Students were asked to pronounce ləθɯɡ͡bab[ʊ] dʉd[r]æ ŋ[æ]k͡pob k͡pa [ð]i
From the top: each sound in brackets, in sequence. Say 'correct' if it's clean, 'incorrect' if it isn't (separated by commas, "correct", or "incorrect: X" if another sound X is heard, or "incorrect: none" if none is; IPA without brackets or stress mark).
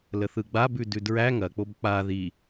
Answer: incorrect: ʉ, incorrect: ɹ, incorrect: ɐ, correct